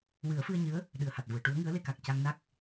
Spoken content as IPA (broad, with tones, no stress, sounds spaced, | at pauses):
w ɨ˨˩˦ ə̯ f ɨ˧ ə̯ ɲ ɨ˧˥ ə̯ | ɗ ɨ˨˩ ə̯ h a˨˩ t̚ v u˨˩˨ ə̯ ʈ u˧˥ ə̯ ŋ ɨ˧˥ ə̯ l e˧ k a˨˩ k̚ c a˧ ŋ n a˦˥ k̚